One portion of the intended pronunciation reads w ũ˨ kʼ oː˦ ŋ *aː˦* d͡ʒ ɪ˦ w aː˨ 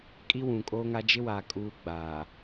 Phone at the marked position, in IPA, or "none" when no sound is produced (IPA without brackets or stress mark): a˦